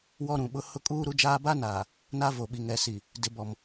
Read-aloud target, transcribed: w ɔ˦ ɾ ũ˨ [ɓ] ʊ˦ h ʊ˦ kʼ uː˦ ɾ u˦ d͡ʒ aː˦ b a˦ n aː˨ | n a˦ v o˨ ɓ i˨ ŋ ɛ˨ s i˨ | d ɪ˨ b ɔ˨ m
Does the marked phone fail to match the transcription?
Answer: no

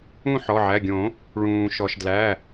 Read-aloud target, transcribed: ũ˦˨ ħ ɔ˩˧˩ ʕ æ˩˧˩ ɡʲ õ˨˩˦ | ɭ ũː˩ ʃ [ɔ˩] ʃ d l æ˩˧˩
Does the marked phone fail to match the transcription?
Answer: no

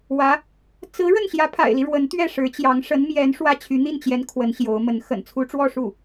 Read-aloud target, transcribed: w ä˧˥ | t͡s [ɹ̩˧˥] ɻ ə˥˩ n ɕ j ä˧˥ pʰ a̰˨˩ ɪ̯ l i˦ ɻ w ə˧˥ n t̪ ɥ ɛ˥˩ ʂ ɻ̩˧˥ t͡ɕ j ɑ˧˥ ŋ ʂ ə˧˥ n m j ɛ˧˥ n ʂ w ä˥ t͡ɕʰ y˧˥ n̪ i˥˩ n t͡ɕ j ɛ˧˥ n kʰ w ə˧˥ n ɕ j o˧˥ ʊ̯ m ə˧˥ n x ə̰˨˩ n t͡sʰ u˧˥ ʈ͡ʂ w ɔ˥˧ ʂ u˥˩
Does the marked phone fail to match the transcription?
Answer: no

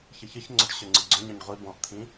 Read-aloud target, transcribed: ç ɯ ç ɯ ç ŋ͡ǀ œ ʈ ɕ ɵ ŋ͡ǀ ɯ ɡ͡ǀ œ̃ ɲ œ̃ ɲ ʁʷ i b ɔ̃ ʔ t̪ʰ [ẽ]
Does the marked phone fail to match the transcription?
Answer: yes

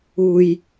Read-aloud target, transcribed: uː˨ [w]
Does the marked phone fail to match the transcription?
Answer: yes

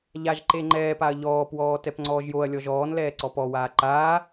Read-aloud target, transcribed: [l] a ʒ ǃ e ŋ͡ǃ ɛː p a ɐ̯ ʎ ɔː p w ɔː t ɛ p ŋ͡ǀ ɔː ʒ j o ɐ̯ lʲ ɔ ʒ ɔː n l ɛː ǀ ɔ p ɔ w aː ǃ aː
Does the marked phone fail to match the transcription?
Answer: yes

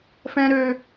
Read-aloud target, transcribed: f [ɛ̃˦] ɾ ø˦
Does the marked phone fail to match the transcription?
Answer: no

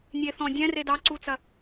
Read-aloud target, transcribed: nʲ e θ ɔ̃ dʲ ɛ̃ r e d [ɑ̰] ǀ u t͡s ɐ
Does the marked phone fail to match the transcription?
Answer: yes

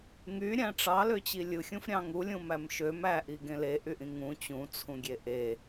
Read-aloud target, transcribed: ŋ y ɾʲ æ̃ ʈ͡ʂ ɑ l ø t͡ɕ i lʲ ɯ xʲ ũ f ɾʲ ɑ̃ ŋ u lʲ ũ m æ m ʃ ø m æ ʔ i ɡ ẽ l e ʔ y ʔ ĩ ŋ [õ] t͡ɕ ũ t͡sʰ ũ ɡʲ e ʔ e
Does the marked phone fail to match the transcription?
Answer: yes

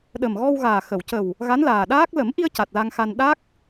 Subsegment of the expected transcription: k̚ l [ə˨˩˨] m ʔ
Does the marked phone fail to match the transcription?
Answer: yes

